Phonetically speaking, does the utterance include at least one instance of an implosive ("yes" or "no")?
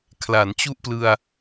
no